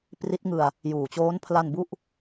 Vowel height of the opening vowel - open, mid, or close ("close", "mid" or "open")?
close